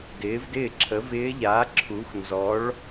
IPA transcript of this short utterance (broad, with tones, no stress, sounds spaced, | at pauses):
d ɪː˩˥ v d ɪː˥˩ ǁʰ ə˩˥ v ɪː˧˥ ʎ a˩˥ ǁʰ u˩˥ x n z ɔ˩˥ ɭ